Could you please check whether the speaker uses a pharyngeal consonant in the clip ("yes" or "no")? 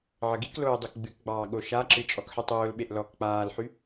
yes